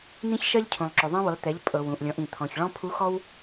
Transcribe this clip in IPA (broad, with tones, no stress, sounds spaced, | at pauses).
n̪ ĩ˥ ç ʃ ɜ˥ ʎ cʰ ũ˩ lˠ ǁ ɵ˩ ðˤ ɛ̃˧ w ɤ˩˧ t̪ ɛ˩˧ ʎ pʼ ɤ˩ w ũ˩ ʔ lʲ ɔ̃˩˧ ʔ ĩ˩ t̪ʰ ɔ̃˩ ç ɭ ɔ̃˥ pʰ u˧˥ x ɔ˥ w